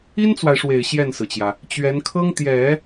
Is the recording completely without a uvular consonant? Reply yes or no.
yes